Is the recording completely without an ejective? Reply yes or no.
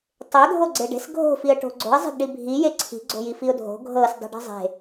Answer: yes